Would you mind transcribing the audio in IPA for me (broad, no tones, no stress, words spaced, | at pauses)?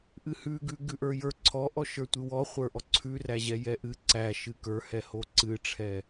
ʔɨhʉɡʉ ɡʉʔə˞jə˞ ǀʰɔʔɔʃə˞ tʷɨwɔχʷə˞ʔɔ ǀʰʉræʑɛ jɛʔɨ ǀæʃɨ kə˞hɛ hoǀɨʈ͡ʂʰɛ